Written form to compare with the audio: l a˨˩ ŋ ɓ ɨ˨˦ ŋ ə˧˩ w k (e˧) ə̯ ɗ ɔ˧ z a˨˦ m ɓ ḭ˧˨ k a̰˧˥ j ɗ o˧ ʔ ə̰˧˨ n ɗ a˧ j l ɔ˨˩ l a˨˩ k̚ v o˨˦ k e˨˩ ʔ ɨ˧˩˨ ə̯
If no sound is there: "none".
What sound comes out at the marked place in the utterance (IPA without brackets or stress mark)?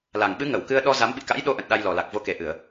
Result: ɨ˧